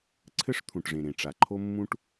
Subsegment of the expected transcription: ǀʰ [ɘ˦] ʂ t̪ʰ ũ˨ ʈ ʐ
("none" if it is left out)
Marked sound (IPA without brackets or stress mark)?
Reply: ɘ˦